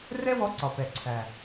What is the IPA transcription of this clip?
r ɛ˦ w ɔ˧ ǀ ɒ˨ p ɛ˨ ǀʰ æ˨

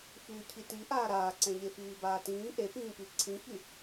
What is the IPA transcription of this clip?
f yː cʰ i t i ʔ aː ɾ aː ǀ ɛ̃ ʎ e f iː b aː t ĩː ʔ e p ĩː p i ǀʰ ĩ ç y

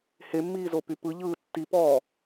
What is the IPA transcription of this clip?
h e mː iː z o p y p ɯ ʎ ɯː tː i p ɔː

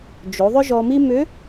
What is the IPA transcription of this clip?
d͡ʒ o˩˧ ðˤ ʏ˥ ʒ ɔ˧ m i˥ m ʏ˧˥

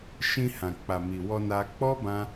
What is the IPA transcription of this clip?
ʃ ĩ˧ h ã˨ k͡p a˨ m i˨ w ɔ˧ n a˧ k͡p ɔ˦ b ã˦

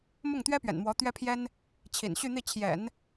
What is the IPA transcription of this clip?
m ʊ˥˩ ŋ t̪ ɥ ɛ˥ p ɥ ɛ̰˨˩ n m w ɔ˧˥ t̪ ɥ ɛ˥ pʰ j ɛ˥ n | t͡ɕʰ ḭ˨˩ n ɕ y˥˧ n̪ i˥˩ t͡ɕʰ j ɛ̰˨˩˦ n

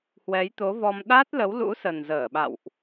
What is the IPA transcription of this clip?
h w ɛ˨˦ j t̪ o˨˦ v ɔ˧ m ɗ a˦˥ t̚ l ə˨˦ w l ṵ˧˥ s ə˨˩ n z əː˧˩ ɓ a̰˧˨ w ʔ

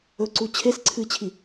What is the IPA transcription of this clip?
ɵ ǀ u t͡ɕʰ e s ǀʰ ɨ t͡ɕʰ i

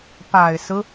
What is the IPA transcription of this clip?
p a˨˩ ɪ̯ s ɹ̩˦

